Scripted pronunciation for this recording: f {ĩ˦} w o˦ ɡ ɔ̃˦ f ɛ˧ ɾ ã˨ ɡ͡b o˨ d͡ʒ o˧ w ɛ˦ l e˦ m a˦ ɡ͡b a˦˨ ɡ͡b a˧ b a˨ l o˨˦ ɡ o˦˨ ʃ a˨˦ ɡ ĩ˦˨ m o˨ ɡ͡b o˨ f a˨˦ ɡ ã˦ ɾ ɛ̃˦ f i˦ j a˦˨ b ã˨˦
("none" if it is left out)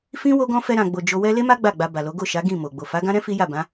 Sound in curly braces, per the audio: ĩ˦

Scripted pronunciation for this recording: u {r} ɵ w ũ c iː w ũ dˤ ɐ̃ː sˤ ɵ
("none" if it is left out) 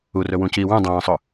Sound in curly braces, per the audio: r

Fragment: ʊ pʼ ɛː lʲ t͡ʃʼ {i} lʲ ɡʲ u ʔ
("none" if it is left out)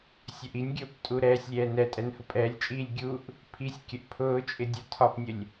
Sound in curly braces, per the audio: iː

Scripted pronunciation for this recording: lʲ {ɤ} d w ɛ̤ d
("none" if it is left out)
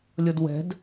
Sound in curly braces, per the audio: ɤ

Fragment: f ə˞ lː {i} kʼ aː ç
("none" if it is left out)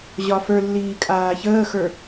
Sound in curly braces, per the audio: iː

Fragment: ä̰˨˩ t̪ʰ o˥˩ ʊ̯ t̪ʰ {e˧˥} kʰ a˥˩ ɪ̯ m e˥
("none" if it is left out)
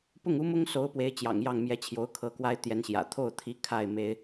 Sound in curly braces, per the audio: i˧˥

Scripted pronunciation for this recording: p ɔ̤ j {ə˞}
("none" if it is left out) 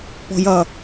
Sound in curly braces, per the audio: ʌ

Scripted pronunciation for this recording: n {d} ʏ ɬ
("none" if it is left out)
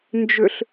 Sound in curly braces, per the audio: d͡ʒ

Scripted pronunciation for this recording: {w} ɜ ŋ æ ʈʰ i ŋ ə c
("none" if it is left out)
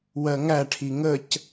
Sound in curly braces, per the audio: w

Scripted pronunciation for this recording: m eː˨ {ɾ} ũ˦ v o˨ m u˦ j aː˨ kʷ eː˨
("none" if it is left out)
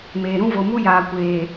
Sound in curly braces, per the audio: ɾ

